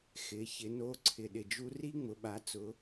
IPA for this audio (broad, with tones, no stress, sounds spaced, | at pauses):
x ɪ˩˧ ç ɪ˩˧ n o˧˥ ǀʰ ɪ˩ ɗ ɪ˩ d͡ʒ u˧ r i˥ ŋ͡m ʊ˩˧ ɓ a˩˧ t͡s ʊ˩˧